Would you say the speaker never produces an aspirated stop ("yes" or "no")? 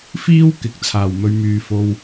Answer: no